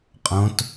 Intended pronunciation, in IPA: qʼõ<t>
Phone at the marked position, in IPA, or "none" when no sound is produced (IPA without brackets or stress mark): t